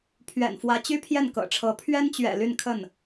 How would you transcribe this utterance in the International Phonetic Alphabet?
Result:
pʰ ɥ ɛ̰˨˩ n f w ä˧˥ t͡ɕ y˥ pʰ j ɛ˥˩ n k ɤ̰˨˩ ʈ͡ʂʰ ɤ˧˥ pʰ ɥ ɛ˥ n t͡ɕ ɥ ɛ̰˨˩ l y˥˧ n kʰ ə˥˩ n

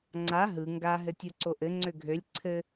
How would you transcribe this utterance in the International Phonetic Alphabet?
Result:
ŋ͡ǀ a ɦ ɯ ŋ ɡ a ɦ ɘ tʲ u ǀ o ʔ ɘ ŋ͡ǀ ø ɡʱ ø lʲ ǀʰ ɘ

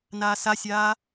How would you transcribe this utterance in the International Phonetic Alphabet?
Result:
n aː s a sʲ aː

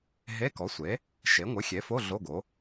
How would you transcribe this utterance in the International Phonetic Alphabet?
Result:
ɦ e˧˥˧ k ɔ˩˥ sʷ e˩˥ | ʃ e˩˥ ŋʷ ɯ˩˥ xʲ e˩˥ f o˧˥˧ ɮ o˧˥˧ ɡ o˩˥

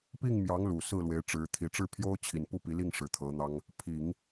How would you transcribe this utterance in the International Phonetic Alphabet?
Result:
p i˥˩ ŋ m j ɑ˧˥ ŋ l u˨˩ s ɹ̩˥˩ l w e˧˥ ɪ̯ ʈ͡ʂ ɻ̩˧˥ t̪ʰ i˧˥ ʈ͡ʂ ɻ̩˥˩ pʰ j o˥ ʊ̯ t͡ɕʰ i˨˩ n p u˥˩ p i˧˥ l i˥˩ ŋ ʂ ɻ̩˧˥ t̪ʰ ɤ˧˥ n̪ ɑ˥ ŋ | pʰ i˨˩˦ ŋ

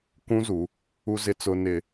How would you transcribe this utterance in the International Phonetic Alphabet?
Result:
k ũ˦ z u˨˦ | u˦ z ɪ˦ t͡s ʊ˦ n ɪ˦

